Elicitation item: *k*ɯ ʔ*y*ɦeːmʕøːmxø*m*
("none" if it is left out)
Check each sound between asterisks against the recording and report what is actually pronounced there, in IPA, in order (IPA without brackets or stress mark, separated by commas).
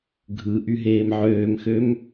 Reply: ɡʱ, y, m